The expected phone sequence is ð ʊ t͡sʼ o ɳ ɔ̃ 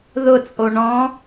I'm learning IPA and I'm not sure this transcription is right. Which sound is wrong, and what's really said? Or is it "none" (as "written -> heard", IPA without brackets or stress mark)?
none